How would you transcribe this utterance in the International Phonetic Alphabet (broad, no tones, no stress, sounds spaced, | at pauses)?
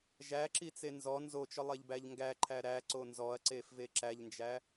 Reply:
ʒ æ ǁ i t͡s e n z ɔ n z o t͡ʃ ɔ lˠ e ʎ b æ ʎ ŋ ɡ æ ǃʰ æ ɾ æ ǀ o n z ɔ ɐ̯ ǀ e f v e ǁ æ ʎ n d͡ʒ æ